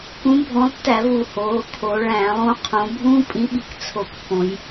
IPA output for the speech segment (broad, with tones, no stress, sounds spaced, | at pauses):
k ũ˨˥ bʱ õ˨˥ lˠ tː æ˧˩˧ v u˨˩ h oː˩˧ kʰ o˩˧ ɭ æ̃ː˧˩˧ lˠ ũ˨˥ qʰ õ˩˧ bʱ ũː˦ pʼ ĩ˨˥ ɓ i˩˧ k t͡sʰ o˨˩ k pː õ˩˧ j